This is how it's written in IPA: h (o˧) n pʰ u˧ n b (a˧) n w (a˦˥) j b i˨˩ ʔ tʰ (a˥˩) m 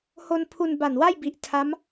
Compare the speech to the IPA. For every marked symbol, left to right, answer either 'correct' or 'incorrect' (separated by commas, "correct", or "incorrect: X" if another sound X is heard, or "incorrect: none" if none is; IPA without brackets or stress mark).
correct, incorrect: a˨˩, incorrect: a˥˩, incorrect: a˦˥